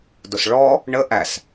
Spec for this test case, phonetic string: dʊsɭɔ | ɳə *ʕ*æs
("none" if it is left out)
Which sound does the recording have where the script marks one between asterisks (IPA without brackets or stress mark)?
ʔ